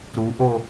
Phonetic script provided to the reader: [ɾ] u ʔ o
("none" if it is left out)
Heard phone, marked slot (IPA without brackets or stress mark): ɾ